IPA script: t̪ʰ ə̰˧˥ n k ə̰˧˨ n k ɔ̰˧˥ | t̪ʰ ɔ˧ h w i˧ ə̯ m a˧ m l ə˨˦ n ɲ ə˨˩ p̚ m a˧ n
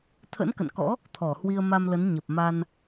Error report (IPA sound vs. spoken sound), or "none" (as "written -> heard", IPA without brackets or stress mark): ɔ˧ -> ɔ˧˩